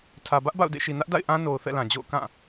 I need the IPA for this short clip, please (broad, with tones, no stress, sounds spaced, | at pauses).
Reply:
tʰ ä˨ b ä˦ ʔ b a̰˦˨ ʊ̯ d ḛ˦˨ ʃ i˨ n ä˦ ʔ d a̰˦˨ ɪ̯ ʔ ã˦ n o˨ ʊ̯ θ ɛ̰˦˨ l ã˨ d͡ʑ o̰˦˨ ʊ̯ k ã˦˨